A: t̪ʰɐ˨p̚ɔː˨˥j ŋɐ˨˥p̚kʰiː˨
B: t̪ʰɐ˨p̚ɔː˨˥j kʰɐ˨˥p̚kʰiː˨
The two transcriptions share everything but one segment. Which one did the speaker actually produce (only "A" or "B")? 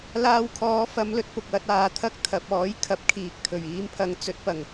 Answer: B